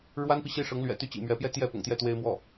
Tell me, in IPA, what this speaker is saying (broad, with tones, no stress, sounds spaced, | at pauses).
ɻ w a˥ n p i˨ ɕ i˥˩ ʂ ɤ˧˥ ŋ l ɥ ɛ̰˨˩ t̪ y˥˩ t͡ɕ ḭ˨˩ m ɥ ɛ˧˥ p j ɛ˥˧ t̪ j ɛ˥˩ p ʊ̰˨˩ ŋ t̪ j ɛ˥˩ t̪ w e˥ ɪ̯ m w ɔ˥˩